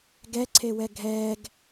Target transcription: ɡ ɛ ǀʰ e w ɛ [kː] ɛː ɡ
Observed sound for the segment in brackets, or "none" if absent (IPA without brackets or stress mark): ɡʱ